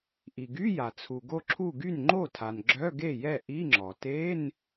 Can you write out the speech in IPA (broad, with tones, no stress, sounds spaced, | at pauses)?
ʔ i˩ ɡ y˧˥˧ j a˩ t͡sʰ u˩ ɡ o˧˩ ǁʰ u˧˩ ɡ y˥˩ n ŋ͡ǃ o˥˩ tʰ a˩ n ɡ͡ǁ œ˧˥˧ ɡ e˥˩ j ɛ˥˩ ʔ i˧˥˧ ŋ͡ǁ ɔ˩ t e˧˥˧ n